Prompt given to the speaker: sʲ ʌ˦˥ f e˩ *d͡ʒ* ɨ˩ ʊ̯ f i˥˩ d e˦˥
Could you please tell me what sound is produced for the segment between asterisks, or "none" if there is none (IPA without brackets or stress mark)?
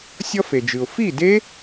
d͡ʒ